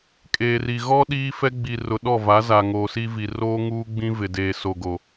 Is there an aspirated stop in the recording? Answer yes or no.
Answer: no